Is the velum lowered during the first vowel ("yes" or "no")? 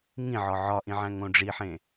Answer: yes